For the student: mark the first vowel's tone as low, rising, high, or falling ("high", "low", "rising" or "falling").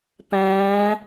rising